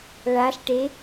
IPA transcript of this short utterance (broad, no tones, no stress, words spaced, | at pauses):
ɭaɬʈe